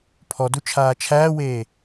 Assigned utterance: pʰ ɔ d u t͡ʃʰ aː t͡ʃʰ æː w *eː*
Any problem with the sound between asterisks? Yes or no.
no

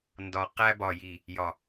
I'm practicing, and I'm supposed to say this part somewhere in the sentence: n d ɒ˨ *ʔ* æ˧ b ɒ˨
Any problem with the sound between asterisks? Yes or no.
yes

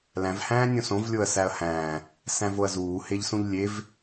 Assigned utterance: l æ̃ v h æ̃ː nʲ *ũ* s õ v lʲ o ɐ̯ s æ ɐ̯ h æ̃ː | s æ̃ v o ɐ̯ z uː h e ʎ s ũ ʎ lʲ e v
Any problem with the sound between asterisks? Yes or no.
yes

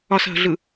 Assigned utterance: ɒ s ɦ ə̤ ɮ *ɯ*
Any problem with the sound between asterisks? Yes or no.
no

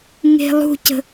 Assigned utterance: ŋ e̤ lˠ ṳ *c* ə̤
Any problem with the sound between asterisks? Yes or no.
no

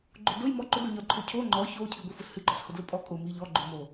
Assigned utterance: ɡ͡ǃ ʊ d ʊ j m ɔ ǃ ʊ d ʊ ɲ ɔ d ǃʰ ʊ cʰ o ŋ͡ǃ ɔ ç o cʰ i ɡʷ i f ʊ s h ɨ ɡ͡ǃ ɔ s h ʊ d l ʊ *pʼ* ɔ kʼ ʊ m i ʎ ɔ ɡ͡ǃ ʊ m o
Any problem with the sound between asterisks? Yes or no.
no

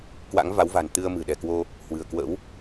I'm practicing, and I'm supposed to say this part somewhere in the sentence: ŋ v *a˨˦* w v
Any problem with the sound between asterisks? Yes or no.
no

